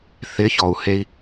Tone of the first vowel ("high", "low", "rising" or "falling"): rising